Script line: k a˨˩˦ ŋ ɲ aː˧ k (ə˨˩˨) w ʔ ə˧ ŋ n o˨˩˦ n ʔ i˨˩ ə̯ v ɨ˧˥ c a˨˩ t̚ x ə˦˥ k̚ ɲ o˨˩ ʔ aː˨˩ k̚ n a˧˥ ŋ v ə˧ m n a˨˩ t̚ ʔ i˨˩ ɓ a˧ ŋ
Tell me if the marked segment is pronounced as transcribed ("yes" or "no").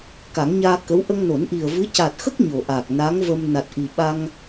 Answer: no